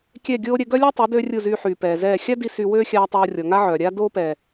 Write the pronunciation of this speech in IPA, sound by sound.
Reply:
kʲɛ˦˨ɡʲoː˦ ɾʲɛ˧ɡœ˦lʲɛ˦tˤy˨˦ døː˦rʲu˦˨zyː˧ħyː˨ pɛː˨zɛː˦˨ xʲa˦di˧ sy˧wøː˦xʲaː˧ tˤoː˧rʲɔ˨ ŋa˦ʕœː˨ɾʲaː˦ doː˦pɛː˨

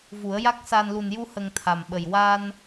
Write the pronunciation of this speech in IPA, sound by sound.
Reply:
vu˨˩˦ə̯ja˦˥k̚saː˧n lu˨˩nju˧hə˨˩ŋ t̪ʰa˨˩mɓə˨˩j wa˧n

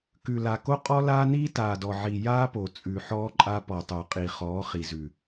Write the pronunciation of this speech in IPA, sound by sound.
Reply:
kʉ˨la˨ko˦ qʼɔ˦laː˦niː˦ taː˨dɔ˨ʕi˨ jaː˦po˨ t͡sʼʉ˨ħɔː˦ǃʼa˦ pɔ˨tˤo˨ qʼi˨χɔː˨˦χi˨zʉ˨

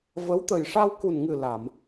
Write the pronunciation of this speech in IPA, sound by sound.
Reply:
və˧˥w t̪ə˨˩jʂa˧wku˨˩nŋɨ˨˩ la˨˩˨m

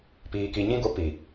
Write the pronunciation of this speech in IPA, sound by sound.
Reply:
piː˨ki˨ɲĩ˧ɡo˨˦ pi˨

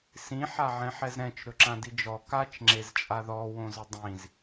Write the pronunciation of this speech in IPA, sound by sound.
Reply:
sĩħaʕɛ̃ħɛz ɾɛ̃t͡ʃ ɾɵǁãdid͡ʒɔ kat͡ʃŋ͡ǁez t͡ʃʼaðɔ wõzʊdˤĩz

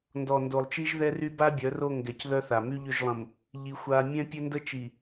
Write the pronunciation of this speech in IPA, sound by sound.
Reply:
ndɔ˨ndo˨lˠt͡ʃi˦ʒ ðɛ˦ry˦ ba˦bʲœ˨˦ ro˦˨ŋɡɛ˨cðœ˦ θa˨ my˦ʎø˦˨ʒlˠə̃˨m | ʎi˦ xʷa˦ mʲɛ̃˦ pʲø˦ndə˦t͡ʃi˨

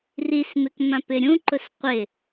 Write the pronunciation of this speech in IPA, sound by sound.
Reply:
rismɪk mãpɪɾʲũǃʊs qʷɪ

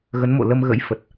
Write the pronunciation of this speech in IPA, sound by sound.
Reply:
ɣə˨˦nmo̰˧˨lə˧mɣə̰˧˥j fə˨˩t̚

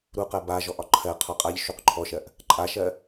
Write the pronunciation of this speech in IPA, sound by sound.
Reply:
ɾuqɜ ba ʒɔʔɒǃʰɜ qʰɔqʼaʎ ʃuqǃʰɔʃɜʔ | ǃʼaʃɜ

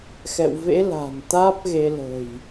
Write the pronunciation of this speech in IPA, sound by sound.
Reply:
xɛ̰˧˨wvḛ˧˥ la̤˨˩nt̪aː˦˥p̚ɣe˧ lə̤˨˩j

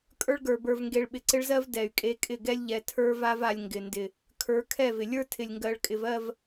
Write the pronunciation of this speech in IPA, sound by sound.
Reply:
kʼə˞˦ɭɡə˞˨bə˞˨v ŋɡe˨ɭɓɪ˨ǀɪ˦ɭzɜ˦v dɛ˨y̯kʼe˦kʼɪ˦˨ ɡɛ˦lʲʎɛ˨ tʰə˞˦va˦va˨lʲ ŋɡɪ˨ ndɪ˨ | kʰə˞˨˦kʰɛ˦˨vɪ˨ lʲə˞˦ tʰɪ˨lʲŋɡɜ˨ɭ kʼɪ˨vɜ˦˨v

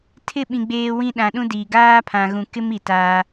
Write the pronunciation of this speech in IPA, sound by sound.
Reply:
tʰɪ˦˨ɓĩ˨ ɡ͡beː˦wĩ˦ ɗã˨ɗũ˦ diː˨ ɡaː˦pʰã˨ɣũ˨kɪ˦m i˨taː˦

